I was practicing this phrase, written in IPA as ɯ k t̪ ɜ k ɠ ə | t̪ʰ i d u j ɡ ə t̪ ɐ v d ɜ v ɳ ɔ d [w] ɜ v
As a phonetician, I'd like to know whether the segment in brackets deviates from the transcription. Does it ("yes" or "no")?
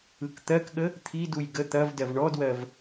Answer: no